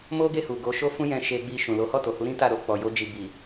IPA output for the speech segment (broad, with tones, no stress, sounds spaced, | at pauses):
m o˦ ɡ e˦˨ h u˨ ɡ o˨˦ ʃ o˦ f ũ˦ j ɛ̃˧ ʃ e˧ ɡ͡b i˧ ʃ ũ˨ l o˨˦ h ɔ˦˨ t o˨ h u˨˦ ɾ ĩ˦ t a˦˨ ɾ o˧ k͡p ɔ˨ j o˧ d͡ʒ i˨ b i˨